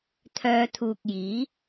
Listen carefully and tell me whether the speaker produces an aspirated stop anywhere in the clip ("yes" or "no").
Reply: yes